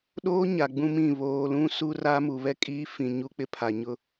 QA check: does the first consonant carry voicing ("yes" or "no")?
yes